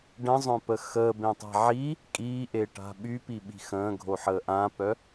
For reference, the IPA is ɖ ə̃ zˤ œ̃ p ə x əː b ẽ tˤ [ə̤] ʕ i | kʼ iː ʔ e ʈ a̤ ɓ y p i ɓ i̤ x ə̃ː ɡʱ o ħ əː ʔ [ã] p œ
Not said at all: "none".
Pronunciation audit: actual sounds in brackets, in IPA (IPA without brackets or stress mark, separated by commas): a̤, ã